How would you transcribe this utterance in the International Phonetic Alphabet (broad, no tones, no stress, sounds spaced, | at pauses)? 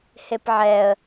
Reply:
h e p ʕ ɛ ə̯